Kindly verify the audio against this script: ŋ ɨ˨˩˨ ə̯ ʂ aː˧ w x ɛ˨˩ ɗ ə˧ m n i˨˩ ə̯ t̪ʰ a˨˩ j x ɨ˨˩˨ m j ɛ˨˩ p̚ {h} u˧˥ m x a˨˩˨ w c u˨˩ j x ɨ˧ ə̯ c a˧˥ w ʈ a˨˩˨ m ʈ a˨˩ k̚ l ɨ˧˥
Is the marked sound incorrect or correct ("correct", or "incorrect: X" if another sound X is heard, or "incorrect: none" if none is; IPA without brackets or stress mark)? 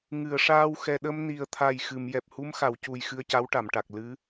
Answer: correct